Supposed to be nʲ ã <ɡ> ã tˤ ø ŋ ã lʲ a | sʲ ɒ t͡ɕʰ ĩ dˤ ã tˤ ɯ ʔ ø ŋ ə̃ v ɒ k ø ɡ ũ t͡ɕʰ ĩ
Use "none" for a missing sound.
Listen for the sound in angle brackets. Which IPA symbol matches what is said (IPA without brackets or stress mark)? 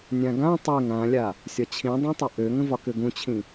ɡ